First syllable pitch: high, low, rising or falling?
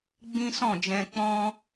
high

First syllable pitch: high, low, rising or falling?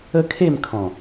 high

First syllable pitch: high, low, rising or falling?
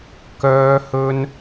high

